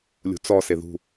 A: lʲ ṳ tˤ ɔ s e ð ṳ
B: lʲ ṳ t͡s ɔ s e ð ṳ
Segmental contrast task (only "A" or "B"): B